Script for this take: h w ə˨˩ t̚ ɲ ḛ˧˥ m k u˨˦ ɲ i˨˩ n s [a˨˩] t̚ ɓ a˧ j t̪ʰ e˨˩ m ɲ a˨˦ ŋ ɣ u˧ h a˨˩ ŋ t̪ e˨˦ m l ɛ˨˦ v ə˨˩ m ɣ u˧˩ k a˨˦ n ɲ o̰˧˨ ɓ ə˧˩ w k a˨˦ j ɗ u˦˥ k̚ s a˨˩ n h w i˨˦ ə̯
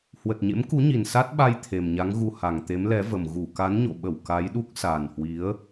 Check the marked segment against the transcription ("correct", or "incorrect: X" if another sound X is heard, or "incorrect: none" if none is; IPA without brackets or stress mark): incorrect: a˦˥